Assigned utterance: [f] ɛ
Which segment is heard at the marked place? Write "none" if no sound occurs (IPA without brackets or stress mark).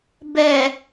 b